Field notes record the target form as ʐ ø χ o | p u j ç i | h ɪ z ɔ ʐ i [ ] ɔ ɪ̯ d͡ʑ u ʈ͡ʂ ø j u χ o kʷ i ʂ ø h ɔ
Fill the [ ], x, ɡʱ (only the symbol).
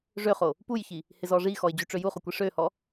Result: x